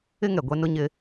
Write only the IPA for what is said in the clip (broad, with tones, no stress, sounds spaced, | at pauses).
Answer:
ɪ˦ ŋ ɛ˨ ɡʷ ɛ˦ n ʊ˦ ɲ ɪ˦